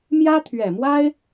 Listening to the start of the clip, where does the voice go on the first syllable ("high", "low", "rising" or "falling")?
high